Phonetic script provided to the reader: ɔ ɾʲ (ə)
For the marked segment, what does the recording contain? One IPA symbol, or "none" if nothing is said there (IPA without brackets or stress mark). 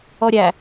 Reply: æ